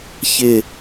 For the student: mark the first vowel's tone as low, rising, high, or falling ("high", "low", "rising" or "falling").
falling